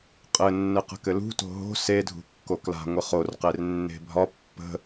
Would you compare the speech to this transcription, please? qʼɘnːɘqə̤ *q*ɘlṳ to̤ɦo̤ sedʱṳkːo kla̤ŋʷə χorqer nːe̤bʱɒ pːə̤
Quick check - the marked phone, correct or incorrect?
incorrect